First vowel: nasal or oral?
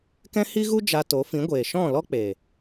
nasal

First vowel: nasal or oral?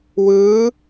oral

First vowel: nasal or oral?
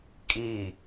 oral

